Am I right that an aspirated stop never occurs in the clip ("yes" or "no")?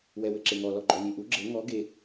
yes